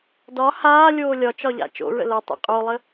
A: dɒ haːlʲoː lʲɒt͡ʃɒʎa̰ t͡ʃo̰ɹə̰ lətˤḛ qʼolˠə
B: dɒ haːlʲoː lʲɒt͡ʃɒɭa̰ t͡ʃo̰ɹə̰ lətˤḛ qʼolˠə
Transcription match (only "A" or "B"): A